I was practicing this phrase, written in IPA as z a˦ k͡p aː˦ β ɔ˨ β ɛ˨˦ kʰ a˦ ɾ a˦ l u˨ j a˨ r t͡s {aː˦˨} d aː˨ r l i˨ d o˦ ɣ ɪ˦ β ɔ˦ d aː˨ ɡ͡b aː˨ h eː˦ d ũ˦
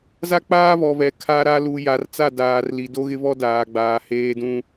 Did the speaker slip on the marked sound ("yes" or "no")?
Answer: yes